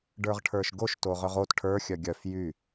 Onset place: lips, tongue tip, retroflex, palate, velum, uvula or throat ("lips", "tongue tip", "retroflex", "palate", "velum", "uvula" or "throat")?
retroflex